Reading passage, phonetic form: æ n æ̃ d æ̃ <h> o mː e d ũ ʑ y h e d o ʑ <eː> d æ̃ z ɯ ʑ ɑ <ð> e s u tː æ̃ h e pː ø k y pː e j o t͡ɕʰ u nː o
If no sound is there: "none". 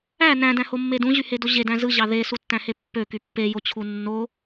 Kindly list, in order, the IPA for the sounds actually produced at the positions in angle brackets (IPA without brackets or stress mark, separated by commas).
h, e, ð